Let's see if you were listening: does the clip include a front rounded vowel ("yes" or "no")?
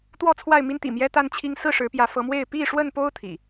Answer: no